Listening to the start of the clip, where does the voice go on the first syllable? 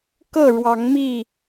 falling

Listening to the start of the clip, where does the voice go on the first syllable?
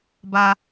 high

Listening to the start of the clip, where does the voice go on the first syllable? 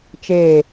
falling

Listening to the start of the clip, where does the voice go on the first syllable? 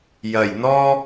low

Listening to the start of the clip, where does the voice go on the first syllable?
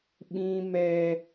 high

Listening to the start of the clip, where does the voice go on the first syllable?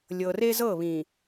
low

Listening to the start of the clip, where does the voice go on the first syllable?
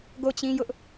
falling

